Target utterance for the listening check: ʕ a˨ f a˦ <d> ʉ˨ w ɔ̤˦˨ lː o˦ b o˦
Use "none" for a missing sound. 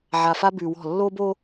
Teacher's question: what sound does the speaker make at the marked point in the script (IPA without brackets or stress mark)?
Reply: b